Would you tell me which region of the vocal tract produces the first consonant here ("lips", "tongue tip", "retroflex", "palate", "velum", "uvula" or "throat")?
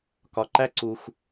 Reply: velum